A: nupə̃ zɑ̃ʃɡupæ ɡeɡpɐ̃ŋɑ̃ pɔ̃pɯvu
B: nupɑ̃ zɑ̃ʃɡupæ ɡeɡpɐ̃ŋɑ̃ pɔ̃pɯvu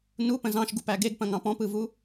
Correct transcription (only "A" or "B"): A